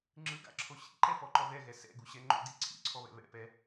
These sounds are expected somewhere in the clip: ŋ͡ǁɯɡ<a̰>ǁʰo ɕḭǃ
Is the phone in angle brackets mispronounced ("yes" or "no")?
no